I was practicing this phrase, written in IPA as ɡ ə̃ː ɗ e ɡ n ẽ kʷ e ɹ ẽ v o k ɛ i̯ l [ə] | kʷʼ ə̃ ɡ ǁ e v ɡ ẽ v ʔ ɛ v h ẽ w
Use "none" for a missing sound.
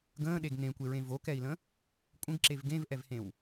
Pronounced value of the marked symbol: ə̃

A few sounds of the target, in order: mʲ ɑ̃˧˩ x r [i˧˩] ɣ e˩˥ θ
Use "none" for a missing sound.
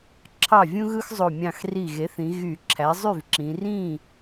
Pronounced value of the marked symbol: i˧˩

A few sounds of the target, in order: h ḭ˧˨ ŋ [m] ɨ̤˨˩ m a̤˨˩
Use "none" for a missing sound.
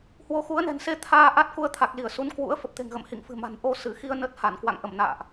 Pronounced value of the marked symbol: f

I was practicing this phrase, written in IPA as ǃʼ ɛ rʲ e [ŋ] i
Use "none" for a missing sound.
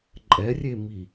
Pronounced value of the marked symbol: m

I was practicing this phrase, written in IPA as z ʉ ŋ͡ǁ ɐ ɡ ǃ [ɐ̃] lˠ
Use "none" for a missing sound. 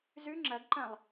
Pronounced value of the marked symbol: ɐ̃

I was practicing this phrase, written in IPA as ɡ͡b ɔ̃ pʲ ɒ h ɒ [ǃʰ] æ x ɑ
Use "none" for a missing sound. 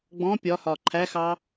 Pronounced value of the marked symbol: ǃʰ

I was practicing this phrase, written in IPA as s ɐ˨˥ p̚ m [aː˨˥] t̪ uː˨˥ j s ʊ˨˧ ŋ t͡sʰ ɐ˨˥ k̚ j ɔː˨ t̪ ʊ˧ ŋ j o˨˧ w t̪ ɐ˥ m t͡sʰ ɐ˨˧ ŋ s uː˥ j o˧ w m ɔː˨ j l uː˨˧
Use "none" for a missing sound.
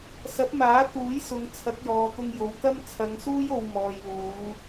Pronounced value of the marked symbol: aː˨˥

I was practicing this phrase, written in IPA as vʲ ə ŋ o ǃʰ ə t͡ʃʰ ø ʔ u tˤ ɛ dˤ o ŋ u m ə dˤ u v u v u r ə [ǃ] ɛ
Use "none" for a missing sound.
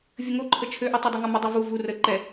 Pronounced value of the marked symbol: ǃ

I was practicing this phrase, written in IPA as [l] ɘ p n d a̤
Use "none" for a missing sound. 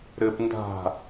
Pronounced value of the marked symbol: ɾ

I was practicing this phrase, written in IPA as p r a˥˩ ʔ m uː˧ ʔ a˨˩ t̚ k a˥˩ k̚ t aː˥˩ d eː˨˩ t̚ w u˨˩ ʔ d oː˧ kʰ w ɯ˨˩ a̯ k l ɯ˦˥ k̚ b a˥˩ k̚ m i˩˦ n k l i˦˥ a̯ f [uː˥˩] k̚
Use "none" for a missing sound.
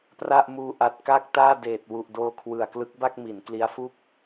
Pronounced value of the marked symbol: uː˥˩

